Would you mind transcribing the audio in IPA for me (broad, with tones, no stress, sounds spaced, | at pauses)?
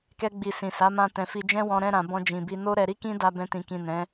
k ɛ˧ ɡ͡b i˨ s ĩ˨ s a˨˦ m ã˧ t ɛ̃˨ f i˧ d͡ʒ ɛ̃˦ w ɔ̃˧ ɾ ɛ̃˧ ɾ ã˨ b ɔ̃˧ d͡ʒ ĩ˨ b i˧ n o˦ ɾ ɛ˧ ɾ i˦ k ĩ˦ d a˧ b ɛ̃˧ t ĩ˨ k ĩ˨ n ɛ̃˨˦